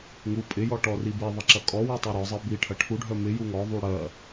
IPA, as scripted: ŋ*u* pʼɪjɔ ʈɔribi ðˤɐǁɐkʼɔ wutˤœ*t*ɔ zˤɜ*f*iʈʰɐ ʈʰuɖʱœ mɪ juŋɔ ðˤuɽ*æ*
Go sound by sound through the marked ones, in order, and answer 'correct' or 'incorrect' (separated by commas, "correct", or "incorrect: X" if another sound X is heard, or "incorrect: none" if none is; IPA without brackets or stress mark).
correct, incorrect: ɾ, incorrect: b, incorrect: ɜ